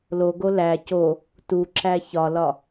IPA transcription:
l o ɡ o l æ c o | t u ǁ æ ç ɒ l ɒ

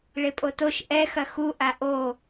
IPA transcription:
ɭ e pʼ o t o ʃ ʔ ɛ x ɐ x u ʔ a ʔ o

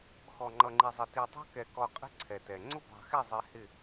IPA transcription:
x ɔ˨ ŋ͡ǃ ʌ˨ ŋ͡ǃ i˨ zˤ ɪ˨ t i˨ tˤ ɑ̤˦ k ɛ˨ k ɔ˨ qʼ ɛ̤˦ ǀʰ ɛ˨ t ɛ˨ ŋ͡ǀ ʊ˦ b ɑ̤˨ x ɪ˦˨ zˤ ɪ˨˦ h ɪ˦˨

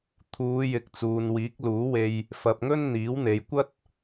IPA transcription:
t̪ʰ uː˨˧ j ɪ˨ k̚ t͡s uː˨ n w iː˨˥ k̚ l uː˨˥ w e˧ j | f ɐ˧ p̚ ŋ ɵ˥ n n̪ iː˨˥ w n̪ e˨˧ j kʷ ɐ˥ t̚

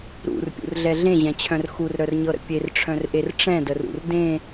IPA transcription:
ɾ ṵ r pʲ ṵ r ɮ ɛ ɮ ẽ ʑ ɛ̃ t͡ɕʰ œ̃ r x u r ɾ œ r ɲ ɤ ɾ ə̰ pʲ e r ʈ͡ʂʰ œ̃ r ʔ e r ʈ͡ʂ ɛ̃ d ə r ṵ r d ẽ

